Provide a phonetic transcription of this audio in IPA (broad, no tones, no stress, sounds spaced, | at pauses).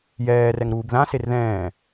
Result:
j ɛː r ɛ ŋ ɾ uː b ð ã s e r ð ɛ̃ː